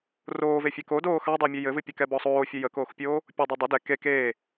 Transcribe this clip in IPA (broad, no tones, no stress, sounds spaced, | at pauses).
r oː v e fʲ ɛ k o d oː x ɑ dˤ ɛ mʲ ø j ɘ v ɨ pʲ ɘ k ɛ b ɔ sˤ oː fʲ ə j ə k oː x pʲ oː | pʲ o dˤ o dˤ ə d ɛ k e k eː